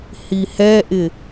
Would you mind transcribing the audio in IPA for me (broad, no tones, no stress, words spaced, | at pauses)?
hihɛʔɪ